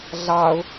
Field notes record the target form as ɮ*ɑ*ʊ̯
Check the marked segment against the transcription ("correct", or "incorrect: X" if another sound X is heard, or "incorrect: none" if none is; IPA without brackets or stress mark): correct